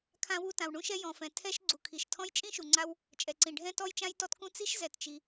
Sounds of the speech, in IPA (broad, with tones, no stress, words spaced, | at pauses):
kʰã˥wu˥ tã˩wɳũ˥ʃɛ˥ jɔ̃˩fɛ̃˩ tʰɛ˥ʃ ɡ͡ǀu˩kʰi˩ʃtʰɔ̃˥j t͡ʃʼĩ˥ʃu˩ ŋ͡ǀa˥w | t͡ʃʼɛ˩ǀĩ˩ ɖʱɛ̃˥ tɔ˥jt͡ʃã˥jtɔ˥tkũ˥ t͡si˥ʃzɛ˩tt͡ʃi˩